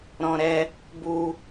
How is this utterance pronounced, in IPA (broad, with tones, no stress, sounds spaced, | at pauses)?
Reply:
ɾ ɔ̃˧ ɾ ɛ˧ | b u˧